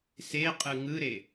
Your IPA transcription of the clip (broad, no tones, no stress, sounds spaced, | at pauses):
s e qʼ ɯ ŋ ɯ ɾ e